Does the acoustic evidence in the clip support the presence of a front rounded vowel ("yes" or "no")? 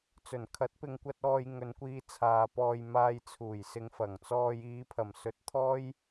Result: no